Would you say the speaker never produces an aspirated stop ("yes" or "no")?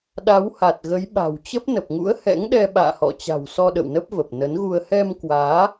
yes